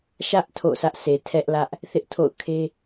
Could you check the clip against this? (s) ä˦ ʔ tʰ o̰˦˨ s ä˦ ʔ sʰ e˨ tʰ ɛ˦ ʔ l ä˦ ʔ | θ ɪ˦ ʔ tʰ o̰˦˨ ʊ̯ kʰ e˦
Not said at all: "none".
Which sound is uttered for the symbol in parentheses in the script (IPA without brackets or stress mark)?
ʃ